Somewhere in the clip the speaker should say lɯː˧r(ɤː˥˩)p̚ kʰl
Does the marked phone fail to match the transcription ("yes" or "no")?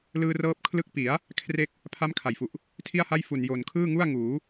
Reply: yes